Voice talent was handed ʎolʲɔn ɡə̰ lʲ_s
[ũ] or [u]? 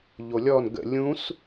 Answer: ũ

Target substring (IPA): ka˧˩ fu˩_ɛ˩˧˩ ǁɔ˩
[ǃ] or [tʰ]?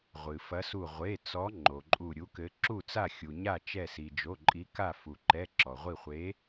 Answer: ǃ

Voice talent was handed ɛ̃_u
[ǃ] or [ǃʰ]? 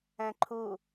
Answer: ǃʰ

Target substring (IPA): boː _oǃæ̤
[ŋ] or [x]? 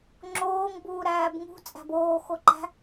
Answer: x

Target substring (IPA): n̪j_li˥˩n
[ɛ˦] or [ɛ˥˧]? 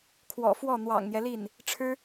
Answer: ɛ˦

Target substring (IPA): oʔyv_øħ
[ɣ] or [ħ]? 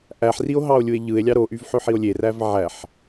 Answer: ħ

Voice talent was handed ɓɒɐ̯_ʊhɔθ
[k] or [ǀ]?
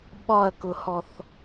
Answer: k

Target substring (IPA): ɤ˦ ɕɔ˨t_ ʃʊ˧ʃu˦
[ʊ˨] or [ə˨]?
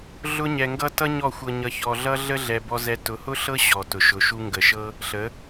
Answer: ʊ˨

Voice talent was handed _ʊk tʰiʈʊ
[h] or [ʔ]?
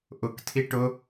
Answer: ʔ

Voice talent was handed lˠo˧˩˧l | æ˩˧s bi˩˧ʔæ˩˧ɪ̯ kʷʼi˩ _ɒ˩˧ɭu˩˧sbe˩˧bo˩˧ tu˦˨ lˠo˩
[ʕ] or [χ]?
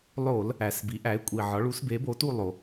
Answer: ʕ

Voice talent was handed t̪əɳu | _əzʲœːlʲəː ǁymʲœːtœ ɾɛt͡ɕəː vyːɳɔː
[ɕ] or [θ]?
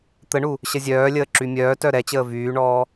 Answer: ɕ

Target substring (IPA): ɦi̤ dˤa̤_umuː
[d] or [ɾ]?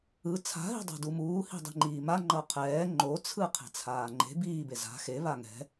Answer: d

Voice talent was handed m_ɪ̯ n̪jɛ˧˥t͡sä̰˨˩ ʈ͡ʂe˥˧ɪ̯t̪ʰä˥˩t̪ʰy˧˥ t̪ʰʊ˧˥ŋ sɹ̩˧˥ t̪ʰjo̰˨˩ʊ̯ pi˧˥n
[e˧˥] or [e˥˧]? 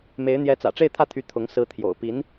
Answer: e˧˥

